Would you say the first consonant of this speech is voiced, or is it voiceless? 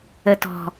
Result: voiceless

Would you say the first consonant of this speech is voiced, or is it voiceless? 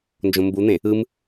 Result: voiced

